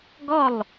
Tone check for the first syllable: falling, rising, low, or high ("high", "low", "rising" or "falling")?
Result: falling